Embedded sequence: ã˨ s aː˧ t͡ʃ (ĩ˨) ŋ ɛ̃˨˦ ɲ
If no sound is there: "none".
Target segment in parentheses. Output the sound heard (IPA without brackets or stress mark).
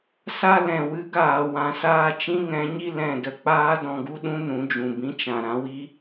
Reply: ĩ˦